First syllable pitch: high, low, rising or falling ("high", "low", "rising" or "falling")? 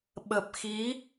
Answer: low